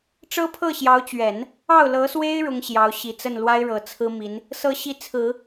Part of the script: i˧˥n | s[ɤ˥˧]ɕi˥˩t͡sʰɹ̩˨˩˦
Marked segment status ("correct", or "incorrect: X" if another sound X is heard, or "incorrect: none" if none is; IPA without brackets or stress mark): correct